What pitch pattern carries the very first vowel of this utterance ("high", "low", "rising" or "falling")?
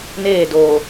falling